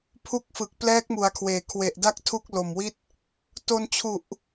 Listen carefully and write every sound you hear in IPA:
pʰ u˥˩ k̚ f ɯ˨˩ k̚ p l ɛː˦˥ k̚ m u˩˦ a̯ kʰ w eː˩˦ kʰ w e˨˩ ʔ d a˦˥ k̚ tʰ u˥˩ k̚ l o˨˩ m w i˥˩ t̚ | t o˧ n t͡ɕʰ u˨˩ ʔ

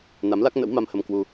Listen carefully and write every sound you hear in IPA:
n a˨˦ m l a˦˥ k̚ n ə̰˧˥ w m a˧ m h ə˧ m k w u˧

